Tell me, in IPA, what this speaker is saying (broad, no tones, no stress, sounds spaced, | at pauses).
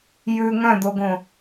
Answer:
j ʉ ŋ œ̃ d̪ o ɡ õ